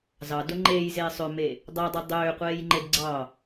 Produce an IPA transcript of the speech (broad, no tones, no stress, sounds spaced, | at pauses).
z ɑ d o ŋ͡ǃ eː j z eː sˤ ø m e | dˤ æ dˤ i dˤ øː qʷ eː j ŋ͡ǃ e d ɡ͡ǀ ɑ